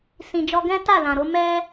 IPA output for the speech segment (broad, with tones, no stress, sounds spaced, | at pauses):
s ĩ˨ d͡ʒ ɔ˧ ɡ ɛ̃˦ t a˦˨ l ã˨ ɾ o˨˦ m ɛ˦